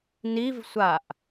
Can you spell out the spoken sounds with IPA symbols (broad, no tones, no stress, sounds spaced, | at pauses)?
n i v sʷ a ʔ